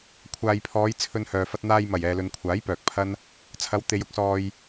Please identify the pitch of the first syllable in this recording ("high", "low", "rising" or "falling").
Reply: low